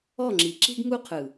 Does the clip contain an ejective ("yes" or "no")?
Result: no